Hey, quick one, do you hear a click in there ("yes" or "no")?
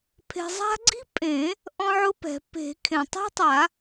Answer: yes